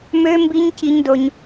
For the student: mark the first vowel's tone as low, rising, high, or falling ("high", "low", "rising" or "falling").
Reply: high